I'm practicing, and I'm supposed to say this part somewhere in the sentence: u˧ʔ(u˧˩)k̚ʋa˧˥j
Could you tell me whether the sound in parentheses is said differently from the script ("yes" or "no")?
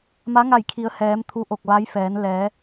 yes